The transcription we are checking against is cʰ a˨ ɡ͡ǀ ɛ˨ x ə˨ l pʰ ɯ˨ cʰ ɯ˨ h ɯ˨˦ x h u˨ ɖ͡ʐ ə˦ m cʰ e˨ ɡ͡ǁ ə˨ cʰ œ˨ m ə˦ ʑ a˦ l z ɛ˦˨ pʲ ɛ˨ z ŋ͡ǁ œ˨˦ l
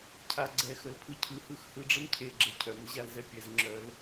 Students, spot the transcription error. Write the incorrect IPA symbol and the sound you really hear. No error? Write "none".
u˨ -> ɯ˨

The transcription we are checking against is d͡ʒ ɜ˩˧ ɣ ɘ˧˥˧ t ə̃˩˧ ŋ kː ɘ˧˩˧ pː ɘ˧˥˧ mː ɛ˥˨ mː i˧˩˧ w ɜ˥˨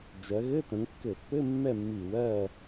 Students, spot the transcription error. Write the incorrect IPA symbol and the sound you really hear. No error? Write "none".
none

